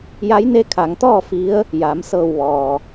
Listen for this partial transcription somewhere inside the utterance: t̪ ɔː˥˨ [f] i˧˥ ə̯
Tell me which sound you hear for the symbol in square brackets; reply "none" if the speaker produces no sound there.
f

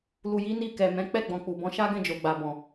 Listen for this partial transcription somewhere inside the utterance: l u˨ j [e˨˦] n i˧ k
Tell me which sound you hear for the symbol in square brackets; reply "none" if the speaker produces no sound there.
i˨˦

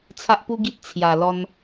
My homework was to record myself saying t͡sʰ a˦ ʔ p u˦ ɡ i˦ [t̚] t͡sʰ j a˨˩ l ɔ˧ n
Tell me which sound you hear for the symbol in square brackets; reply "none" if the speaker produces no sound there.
t̚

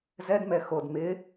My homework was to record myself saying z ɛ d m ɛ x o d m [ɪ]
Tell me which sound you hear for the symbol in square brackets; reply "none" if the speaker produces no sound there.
ɪ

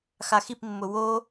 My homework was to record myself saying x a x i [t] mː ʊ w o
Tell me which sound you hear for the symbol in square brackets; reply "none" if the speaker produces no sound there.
p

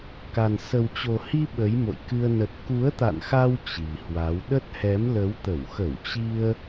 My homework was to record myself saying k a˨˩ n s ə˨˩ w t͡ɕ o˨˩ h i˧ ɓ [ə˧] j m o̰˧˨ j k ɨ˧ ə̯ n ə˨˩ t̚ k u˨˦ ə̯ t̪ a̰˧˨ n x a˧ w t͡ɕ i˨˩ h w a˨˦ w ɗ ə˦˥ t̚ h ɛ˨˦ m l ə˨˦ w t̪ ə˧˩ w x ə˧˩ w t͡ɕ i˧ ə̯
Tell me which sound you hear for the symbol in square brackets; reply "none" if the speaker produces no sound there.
ə˨˦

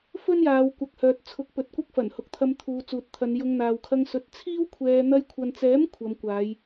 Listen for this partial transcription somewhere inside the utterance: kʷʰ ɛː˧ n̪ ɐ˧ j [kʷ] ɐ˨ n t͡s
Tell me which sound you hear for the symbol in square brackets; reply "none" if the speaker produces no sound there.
kʷʰ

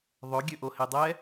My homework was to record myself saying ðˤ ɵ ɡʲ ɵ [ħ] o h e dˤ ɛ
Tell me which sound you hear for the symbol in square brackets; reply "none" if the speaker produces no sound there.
ʔ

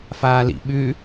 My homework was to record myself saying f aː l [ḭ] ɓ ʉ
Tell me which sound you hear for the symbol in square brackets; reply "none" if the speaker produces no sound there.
ḭ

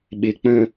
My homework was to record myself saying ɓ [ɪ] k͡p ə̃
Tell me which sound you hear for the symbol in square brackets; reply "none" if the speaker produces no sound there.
ɪ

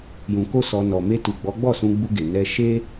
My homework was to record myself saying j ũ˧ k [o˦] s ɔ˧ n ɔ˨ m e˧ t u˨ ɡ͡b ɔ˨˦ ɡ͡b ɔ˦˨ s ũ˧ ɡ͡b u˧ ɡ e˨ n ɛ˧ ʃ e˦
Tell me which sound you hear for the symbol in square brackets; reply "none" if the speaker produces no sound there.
o˦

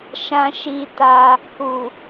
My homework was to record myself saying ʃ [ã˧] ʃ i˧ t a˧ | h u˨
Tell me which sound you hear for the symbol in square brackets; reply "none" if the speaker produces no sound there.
ã˧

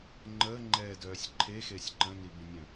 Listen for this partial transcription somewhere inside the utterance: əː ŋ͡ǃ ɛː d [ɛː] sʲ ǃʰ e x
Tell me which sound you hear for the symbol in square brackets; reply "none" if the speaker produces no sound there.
œː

